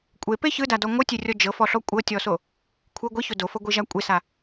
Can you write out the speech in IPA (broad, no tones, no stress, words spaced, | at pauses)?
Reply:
kʷʼepe çɯdadɔ ŋʷɯtʲerʲɔ d͡ʒɤfɔɬɔ kʷʼɤtʲɔso | kʷʰɯ ɡʷiço dofɤɡʷiʒa kʷʼesa